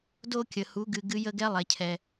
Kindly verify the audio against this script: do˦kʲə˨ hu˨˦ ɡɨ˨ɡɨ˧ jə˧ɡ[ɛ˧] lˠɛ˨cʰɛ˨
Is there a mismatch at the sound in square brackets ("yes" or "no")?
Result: no